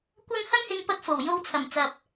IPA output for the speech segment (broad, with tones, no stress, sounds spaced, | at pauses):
kʷ ɐ˥ ŋ h ɐ˥ ŋ h ɪ˧ ŋ p ɐ˧ k̚ f o˨˩ w j o˧ w t͡sʰ ɐ˨˩ m t͡s ɐ˨ p̚